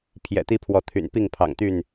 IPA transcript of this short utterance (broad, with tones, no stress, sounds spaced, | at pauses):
pʰ j ɛ̰˨˩ t̪ i˦ pʰ w ɔ˨˦ t̪ʰ y̰˨˩ n p i˥˨ ŋ pʰ ɑ̰˨˩ ŋ t̪ y˥˨ n